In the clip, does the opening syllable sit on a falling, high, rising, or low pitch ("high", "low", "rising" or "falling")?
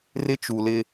high